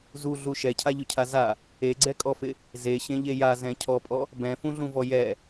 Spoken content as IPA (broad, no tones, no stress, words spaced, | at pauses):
zuɮu ʃɛcʰaʎʊcʰa za | eɡ͡ǀɛkʼɔfɪ | zeɕẽʎe jazɛ̃ cʰɔpʼɔ | bɛ̃fũɮũvɔ jɛ